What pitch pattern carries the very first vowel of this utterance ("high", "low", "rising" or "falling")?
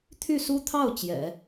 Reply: falling